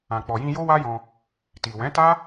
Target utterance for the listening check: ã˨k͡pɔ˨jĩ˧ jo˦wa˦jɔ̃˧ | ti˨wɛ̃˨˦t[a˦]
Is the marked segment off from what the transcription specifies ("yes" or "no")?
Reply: no